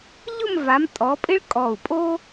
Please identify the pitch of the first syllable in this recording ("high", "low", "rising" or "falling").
falling